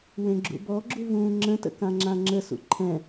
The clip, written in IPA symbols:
w ẽ ɡ͡ǁ ṵ b ɔ ɡ͡ǁ u v ũː ŋ͡ǁ ə̃ t ə̰ k ã ŋ͡ǁ ã ŋ͡ǁ ə s ṵ ǃʰ ɛ̃

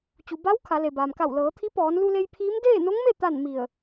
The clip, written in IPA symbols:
t͡ɕ u˩ b a˧˥ w kʰ a˩˧ l e˩ b aː˩ m k a˧˩ w l ɤː˩˧ t̪ʰ i˧˥ p ɔː˩˧ n l u˧ l e˧ j pʰ iː˧˥ m d eː˥˨ n o˧˥ ŋ m e˥˨ t̪ a˥˨ n m i˧˩ ə̯

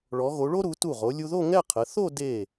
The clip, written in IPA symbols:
ɭ ɔ˩˧ ɣ o˩˧ ɭ o˥ ɾ u˩˧ t u˧˩ ʁ o˩˧ lʲ u˧ ð o˥˧ ŋ ɛ˥˧ qʰ ə˩˧ θ o˥˧ d e˧˩

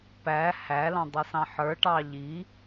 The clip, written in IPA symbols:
p æ h æ l ɑ̃ dˤ ʌ s ɑ̃ ħ ə˞ ʈ ɑ ʎ i

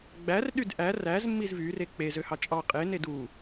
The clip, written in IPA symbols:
ɡ͡b æ r ɗ y d ʔ æ r æ z mː i z v y r e k͡p e z ø h ɑ t͡ʃʼ ɑ qʼ e n e d u

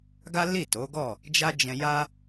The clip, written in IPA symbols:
ɡ a˦ l i˦˨ t o˨˦ ɡ ɔ˦˨ | d͡ʒ a˦ d͡ʒ ɛ̃˧ j a˦

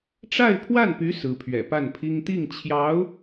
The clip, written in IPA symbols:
ʈ͡ʂ a˥˧ ɪ̯ pʰ w a˥˩ n p y˧˥ s ɹ̩˧˥ pʰ ɥ ɛ̰˨˩ p a˥˩ n pʰ i˥ ŋ t̪ i˥˩ ŋ t͡ɕʰ j ɑ˧˥ ʊ̯

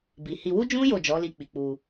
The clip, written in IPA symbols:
b i˨ h i˧ w u˦ d͡ʒ ũ˦ j o˦˨ d͡ʒ ɔ˨˦ l i˧ k͡p i˨ k͡p u˧

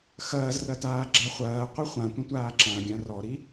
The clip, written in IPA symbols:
x ɐː z r ɐ t aː ɡ͡ǁ a χʷ ɐː qʷ ɛ χʷ ã tʷ ɐ̃ tʷ aː ǁ ã ɡʲ ã r ɔ ɾ i

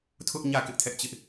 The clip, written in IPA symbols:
tʰ ʊ˦ ʔ ɲ ä˦˨ k ɪ˦ ʔ tʰ ɛ˦ ʔ t͡ɕ ɪ˦ ʔ

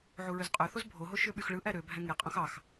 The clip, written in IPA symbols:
ʕ u ɹ ø z qʼ ø θ o z bʱ o ɦ o ʃ ø ɓ y x ɭ ɯ ʔ æ ɾ ø bʱ æ̃ ŋ e qʼ õ x ɑ x

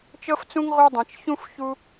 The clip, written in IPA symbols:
t͡ʃ ɤ˥ f t͡s ũ˥ ŋ ʁʷ ɤ˦ dˤ ɛ̃˨ t͡ʃ ç ũ˦ f ç u˥

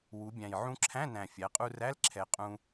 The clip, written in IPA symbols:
w u˩˧ bʲ æ̃˨˩ j ʕ ũ˧ ǁʰ æ̃˧˥˧ n æ̃˨˩ fʲ æ˩˧ qʼ u˧ r æ˧˥˧ l ǁʰ ɛ˨˩ qʼ ũ˧

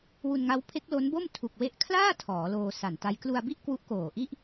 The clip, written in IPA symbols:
w u˧ n ŋ a˦˥ w pʰ e˦˥ k̚ l o˦˥ n b o˥˩ m tʰ u˨˩ k̚ w e˦˥ ʔ kʰ l aː˥˩ tʰ ɔː˩˦ l oː˧ s a˨˩ n t a˦˥ j k l u˧ a̯ b i˥˩ ʔ k w u˦˥ ʔ k oː˨˩ ʔ i˥˩ ʔ

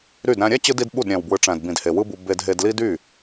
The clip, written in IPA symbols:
ɾ y˦˨ d ɾ æ̃˦ ɾʲ æ˦˨ t͡ɕ ɯ˧ d i˦ d ɓ u˦˨ d ɾʲ æ̃˨ w b w ɯ˨ ʈ͡ʂ æ̃˨ d b ĩ˨ d h e˨ w ɯ˦ b u˧ b e˧ d ɦ e˧ d l i˦ d y˦˨

